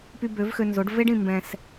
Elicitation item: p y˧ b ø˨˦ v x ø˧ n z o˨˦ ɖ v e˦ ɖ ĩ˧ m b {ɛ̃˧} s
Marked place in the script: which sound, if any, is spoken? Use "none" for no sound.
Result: ɛ̃˧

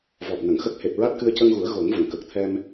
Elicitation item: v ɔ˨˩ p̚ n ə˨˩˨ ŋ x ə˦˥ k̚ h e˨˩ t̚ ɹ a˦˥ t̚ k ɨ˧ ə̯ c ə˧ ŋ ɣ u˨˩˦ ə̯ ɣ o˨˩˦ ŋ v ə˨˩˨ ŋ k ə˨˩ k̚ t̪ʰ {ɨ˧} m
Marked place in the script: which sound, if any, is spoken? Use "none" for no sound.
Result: ɛ˧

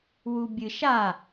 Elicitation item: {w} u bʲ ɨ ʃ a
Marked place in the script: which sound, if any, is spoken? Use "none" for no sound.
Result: w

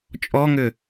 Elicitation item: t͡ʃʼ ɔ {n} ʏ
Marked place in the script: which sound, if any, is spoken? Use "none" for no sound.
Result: ŋ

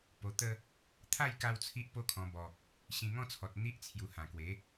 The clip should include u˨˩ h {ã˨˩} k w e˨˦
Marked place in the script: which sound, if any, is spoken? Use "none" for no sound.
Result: ã˨˩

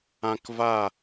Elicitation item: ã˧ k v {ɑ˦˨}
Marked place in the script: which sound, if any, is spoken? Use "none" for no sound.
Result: a˦˨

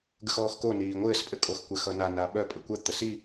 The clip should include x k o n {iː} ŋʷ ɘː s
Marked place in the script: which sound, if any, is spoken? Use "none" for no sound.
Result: iː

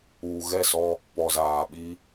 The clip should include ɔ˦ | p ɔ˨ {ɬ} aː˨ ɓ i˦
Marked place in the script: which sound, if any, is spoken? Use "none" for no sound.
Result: z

